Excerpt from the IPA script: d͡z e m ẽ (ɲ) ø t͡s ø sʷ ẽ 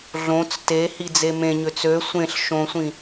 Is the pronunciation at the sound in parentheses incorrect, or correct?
correct